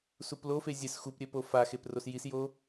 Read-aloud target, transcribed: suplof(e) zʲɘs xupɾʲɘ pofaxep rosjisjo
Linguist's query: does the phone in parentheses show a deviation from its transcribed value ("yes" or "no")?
no